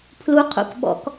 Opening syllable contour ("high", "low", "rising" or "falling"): rising